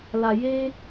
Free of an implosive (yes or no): yes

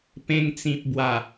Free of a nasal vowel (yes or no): no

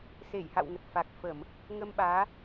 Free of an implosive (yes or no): no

